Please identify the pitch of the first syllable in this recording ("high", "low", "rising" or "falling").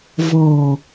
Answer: low